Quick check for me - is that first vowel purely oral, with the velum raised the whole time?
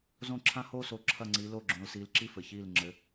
no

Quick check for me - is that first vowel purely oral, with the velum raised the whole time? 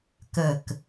yes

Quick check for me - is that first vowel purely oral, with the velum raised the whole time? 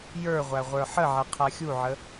yes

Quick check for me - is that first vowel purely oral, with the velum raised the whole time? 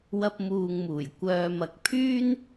yes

